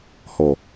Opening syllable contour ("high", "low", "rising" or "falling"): low